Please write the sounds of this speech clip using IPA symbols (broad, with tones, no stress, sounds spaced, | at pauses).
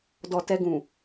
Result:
d ɔ˨ t ɛ˧ ɡ ũ˨